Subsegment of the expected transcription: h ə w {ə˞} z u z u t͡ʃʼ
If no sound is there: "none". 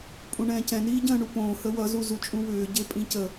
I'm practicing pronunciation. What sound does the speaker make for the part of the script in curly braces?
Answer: ʌ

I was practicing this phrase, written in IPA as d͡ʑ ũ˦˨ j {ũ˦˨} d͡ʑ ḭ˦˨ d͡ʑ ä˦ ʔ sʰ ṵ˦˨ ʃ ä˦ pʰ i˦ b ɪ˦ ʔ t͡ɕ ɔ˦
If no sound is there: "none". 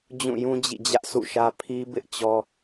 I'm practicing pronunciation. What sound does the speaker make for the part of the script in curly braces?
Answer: ũ˦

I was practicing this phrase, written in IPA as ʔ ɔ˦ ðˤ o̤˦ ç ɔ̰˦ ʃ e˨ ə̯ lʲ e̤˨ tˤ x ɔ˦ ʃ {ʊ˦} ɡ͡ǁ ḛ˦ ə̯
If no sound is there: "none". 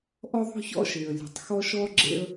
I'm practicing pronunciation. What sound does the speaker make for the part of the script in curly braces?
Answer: ɔ˦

